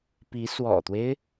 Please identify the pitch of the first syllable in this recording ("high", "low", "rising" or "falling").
rising